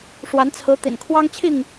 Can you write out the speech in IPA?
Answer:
ʂ w a˨˦ n t͡sʰ ɹ̩˨˦ t̪ ḭ˨˩ n kʰ w ɑ˦ ŋ t͡ɕʰ i˥˨ ŋ

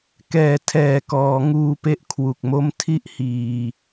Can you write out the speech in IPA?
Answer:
k ɛː˨˩ tʰ ɛː˨˩ k ɔː˩˦ ŋ uː˧ p e˦˥ ʔ kʰ w u˨˩ k̚ m o˥˩ m tʰ i˥˩ ʔ h iː˨˩

